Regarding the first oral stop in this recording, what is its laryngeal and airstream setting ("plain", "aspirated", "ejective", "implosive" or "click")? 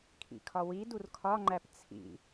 aspirated